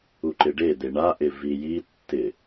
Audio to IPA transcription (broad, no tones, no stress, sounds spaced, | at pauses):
u ǃ ɪ ɖ e d̪ e ɳ a ʔ ɪ v i j i tː ɪ